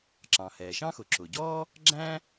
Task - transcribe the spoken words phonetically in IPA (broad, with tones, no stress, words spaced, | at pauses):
ǁɑ̃˩hɛː˩ʃɑ̃˥xʊ˩ ǁʊ˩ɟɔː˥ | ɡ͡ǁæ̃˥